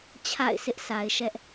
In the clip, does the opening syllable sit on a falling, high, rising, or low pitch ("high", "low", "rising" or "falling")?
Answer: falling